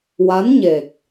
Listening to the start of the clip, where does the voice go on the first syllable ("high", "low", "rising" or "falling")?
rising